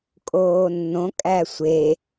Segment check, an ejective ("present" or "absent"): present